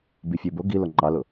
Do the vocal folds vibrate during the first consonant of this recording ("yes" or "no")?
yes